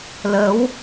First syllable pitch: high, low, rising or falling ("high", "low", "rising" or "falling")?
rising